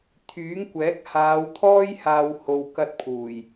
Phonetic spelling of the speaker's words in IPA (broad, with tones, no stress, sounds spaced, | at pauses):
t̪ʰ yː˨˥ ŋ kʷ ɛː˨˥ k̚ h aː˨˧ w t̪ʰ ɔː˥ j h aː˧ w h o˨ w k ɐ˧ t̚ pʰ uː˨˩ j